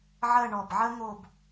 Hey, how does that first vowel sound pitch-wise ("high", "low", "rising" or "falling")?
falling